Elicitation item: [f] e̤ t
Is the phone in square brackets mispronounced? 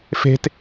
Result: no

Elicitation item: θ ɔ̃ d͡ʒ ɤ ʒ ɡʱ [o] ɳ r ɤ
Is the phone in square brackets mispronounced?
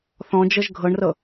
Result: yes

